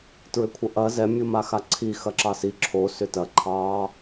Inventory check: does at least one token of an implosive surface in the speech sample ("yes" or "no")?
no